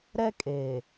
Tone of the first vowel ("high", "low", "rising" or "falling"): high